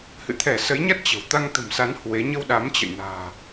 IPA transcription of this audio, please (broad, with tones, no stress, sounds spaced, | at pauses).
h ɨ̰˧˨ t̪ʰ ɛ˧˩ s ə˨˦ j ɲ a˦˥ t̚ t͡ɕ ə̤˨˩ w t̪ a˧ ŋ t̪ ə̤˨˩ m s a˨˦ n h w e˨˦ ɲ ə˧ w ɗ a˨˦ m t͡ɕ ə̰˧˨ j n a̤ː˨˩